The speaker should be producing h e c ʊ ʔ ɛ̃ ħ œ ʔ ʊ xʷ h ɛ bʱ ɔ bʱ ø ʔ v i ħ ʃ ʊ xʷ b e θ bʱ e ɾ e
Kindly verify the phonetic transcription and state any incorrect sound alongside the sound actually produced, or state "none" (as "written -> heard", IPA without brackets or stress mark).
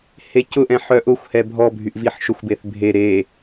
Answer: ø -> y